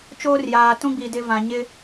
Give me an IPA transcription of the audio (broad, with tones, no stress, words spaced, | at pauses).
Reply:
t͡ʃoː˦rjaː˨tũ˦ɡ͡bi˨ dɪ˦vã˨ ɲɪ˦